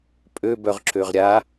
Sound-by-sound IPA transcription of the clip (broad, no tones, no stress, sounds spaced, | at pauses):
pʼ ø b œ ʁ ǁ ø ʁ ɾʲ a